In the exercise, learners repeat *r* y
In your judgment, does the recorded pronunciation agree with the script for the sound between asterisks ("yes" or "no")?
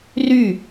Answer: yes